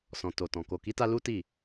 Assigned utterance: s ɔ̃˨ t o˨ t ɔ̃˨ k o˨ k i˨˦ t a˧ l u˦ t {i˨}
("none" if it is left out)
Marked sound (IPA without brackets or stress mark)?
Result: i˦˨